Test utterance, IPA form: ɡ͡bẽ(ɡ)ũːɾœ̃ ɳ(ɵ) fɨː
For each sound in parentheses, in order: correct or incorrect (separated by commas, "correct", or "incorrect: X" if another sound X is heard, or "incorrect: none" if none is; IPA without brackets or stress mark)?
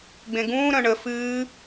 correct, incorrect: ə